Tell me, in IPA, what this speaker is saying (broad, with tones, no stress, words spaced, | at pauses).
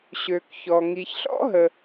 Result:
ɕø˩kçɔ˩ ŋi˩çɬɔ̰˥ɦə˩